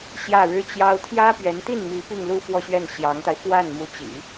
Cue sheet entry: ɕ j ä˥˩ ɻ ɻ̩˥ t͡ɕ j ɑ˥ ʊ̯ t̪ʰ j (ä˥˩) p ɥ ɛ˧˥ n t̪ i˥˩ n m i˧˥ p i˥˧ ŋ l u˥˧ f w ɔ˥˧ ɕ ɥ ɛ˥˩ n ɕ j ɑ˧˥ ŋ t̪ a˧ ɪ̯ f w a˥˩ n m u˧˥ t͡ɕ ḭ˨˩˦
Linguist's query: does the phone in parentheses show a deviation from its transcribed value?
yes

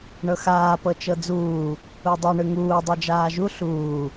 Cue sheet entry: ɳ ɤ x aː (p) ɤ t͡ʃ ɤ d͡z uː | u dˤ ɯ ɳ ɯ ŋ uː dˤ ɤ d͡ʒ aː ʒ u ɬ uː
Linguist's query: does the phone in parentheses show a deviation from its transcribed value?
no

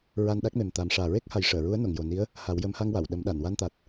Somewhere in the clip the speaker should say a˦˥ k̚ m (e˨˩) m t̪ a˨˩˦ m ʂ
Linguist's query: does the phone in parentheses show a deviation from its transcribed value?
no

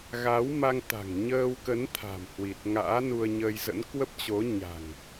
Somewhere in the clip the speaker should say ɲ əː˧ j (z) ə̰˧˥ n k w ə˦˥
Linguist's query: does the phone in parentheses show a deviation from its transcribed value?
no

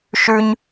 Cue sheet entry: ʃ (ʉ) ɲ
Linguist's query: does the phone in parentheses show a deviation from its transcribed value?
no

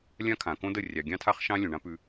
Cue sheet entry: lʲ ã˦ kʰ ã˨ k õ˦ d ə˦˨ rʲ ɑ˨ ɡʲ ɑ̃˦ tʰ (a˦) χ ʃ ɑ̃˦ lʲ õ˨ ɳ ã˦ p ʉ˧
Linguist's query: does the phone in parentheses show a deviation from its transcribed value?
no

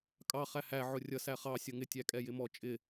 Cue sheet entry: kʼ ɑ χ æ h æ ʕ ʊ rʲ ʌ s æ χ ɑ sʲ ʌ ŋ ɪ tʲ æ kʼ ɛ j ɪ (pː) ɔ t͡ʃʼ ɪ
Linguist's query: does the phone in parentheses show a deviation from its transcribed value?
yes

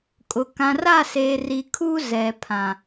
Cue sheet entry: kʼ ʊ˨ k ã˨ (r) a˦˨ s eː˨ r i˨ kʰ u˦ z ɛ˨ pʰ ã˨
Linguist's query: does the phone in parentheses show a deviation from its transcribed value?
no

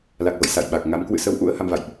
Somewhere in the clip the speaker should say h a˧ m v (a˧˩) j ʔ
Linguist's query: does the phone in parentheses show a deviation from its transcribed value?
yes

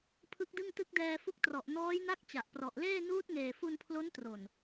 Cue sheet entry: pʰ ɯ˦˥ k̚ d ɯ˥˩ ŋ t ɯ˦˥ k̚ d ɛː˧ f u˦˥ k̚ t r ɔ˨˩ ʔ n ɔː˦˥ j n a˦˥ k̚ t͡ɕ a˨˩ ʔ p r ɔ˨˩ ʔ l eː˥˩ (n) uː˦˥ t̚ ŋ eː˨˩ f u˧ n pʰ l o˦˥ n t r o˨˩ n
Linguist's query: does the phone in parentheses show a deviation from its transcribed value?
no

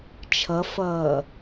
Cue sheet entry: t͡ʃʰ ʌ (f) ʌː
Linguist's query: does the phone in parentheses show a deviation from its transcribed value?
no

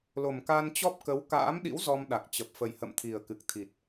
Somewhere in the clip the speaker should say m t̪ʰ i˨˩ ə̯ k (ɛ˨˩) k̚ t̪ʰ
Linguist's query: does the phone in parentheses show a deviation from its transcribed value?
yes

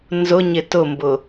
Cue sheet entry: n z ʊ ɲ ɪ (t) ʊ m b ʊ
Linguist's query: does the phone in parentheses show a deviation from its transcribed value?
no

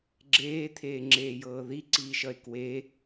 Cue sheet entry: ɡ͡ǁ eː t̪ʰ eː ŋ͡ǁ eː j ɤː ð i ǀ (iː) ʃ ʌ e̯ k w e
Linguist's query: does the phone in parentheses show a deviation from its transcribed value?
no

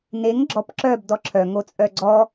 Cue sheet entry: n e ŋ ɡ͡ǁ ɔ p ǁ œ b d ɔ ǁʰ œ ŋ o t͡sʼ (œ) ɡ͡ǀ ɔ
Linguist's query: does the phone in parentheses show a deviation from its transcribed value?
no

